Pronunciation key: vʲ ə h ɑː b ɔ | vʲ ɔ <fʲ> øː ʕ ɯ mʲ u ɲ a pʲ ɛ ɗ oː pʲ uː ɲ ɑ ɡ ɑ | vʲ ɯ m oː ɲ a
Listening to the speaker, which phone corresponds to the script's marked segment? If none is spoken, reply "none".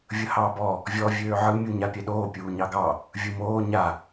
vʲ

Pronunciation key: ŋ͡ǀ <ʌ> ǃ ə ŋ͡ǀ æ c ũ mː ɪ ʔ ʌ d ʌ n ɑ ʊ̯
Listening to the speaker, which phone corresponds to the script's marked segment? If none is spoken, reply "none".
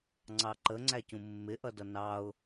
ɑ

